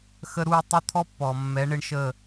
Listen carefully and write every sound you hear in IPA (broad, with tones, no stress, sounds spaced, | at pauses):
x ə˦ ɾ u˦ tˤ ʊ˦ t̪ʰ ɔ˦ pː ɔ˨ mː ɛ˨˦ ɳ ɪ˧ ɳ ʃ ə˦˨